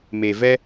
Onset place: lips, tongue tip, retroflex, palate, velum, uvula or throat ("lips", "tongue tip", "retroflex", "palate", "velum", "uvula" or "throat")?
lips